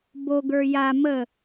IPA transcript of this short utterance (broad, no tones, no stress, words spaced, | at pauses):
boɡə˞ ja mə